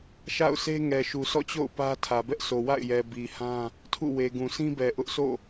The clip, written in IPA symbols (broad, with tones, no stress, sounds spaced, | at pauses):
ʃ a̰˦˨ ʊ̯ s e˦ ŋ ɛ˨ ʃ u˨ sʰ ɔ̰˦˨ t͡ɕ o̰˦˨ ʊ̯ p ä˦ tʰ ä˨ b ɛ˦ ʔ sʰ o˨ w a̰˦˨ ɪ̯ j ɛ˨ b i˨ h ã˦ | tʰ ṵ˦˨ w e˨ ɡ ũ˨ sʰ ĩ˦ b ɛ˨ ʔ ʊ˦ ʔ s o̰˦˨